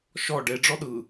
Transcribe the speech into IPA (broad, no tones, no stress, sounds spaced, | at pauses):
ʃ ɔ ɖ e ɖ͡ʐ ɔ ɗ ɯ